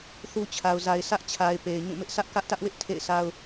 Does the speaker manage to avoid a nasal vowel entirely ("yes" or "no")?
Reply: no